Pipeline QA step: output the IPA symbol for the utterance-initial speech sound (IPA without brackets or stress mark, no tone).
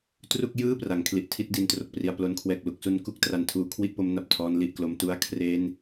t